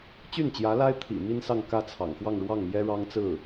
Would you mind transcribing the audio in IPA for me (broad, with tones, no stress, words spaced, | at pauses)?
t͡ɕy˥˩nt͡ɕjä˧˥la˥ɪ̯t̪ʰḭ˨˩ mi˥nsɑ˥˧ŋ kä˥˩t͡sʰɑ̰˨˩ŋxwɑ˥˧ŋ ɻwɑ˥˩ŋmjɛ˥ɻɑ˥ŋt͡sɹ̩˥˩